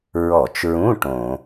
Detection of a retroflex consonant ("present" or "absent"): present